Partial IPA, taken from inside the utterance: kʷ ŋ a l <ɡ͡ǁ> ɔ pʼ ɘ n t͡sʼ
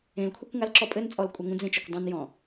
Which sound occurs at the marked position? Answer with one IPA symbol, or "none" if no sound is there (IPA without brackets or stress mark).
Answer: ǁ